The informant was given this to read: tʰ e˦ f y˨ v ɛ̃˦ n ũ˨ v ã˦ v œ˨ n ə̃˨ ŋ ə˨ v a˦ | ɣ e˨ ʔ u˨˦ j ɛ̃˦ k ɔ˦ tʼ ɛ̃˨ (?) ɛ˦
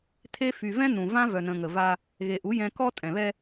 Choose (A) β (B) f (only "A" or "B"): A